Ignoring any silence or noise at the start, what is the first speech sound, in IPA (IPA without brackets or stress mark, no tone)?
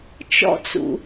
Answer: t͡ʃ